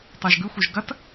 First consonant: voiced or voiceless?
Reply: voiceless